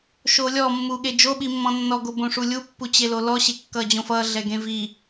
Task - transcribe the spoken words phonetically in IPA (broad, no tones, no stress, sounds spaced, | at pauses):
ʃ oː lʲ ɔ mː uː ɠ e d͡ʒ o ɓ i mː ɔ̃ nː ɔ ɡ o b õ ʂ u lʲ u pː u t͡ɕ e l o l ɔ ɕ e kː ʌː d͡ʑ õ f ʌː ɮ ɛ ɡ ẽ v i